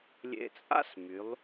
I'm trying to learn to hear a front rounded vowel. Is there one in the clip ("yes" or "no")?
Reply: yes